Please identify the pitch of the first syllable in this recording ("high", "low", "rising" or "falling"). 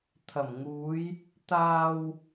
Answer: low